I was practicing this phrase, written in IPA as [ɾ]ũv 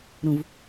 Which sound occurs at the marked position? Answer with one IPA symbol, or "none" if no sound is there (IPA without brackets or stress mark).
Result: ɾ